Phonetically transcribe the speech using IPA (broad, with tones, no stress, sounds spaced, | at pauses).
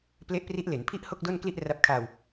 p l e˦˥ ʔ p r i˦˥ ʔ l e˩˦ n pʰ i˥˩ ʔ h o˥˩ k̚ d o˥˩ n k l i˥˩ ʔ r a˦˥ p̚ kʰ aː˧ w